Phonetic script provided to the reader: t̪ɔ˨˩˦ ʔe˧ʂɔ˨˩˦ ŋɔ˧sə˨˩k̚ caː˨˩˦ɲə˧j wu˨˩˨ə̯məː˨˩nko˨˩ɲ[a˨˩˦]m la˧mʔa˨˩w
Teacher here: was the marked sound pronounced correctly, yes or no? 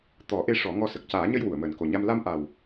no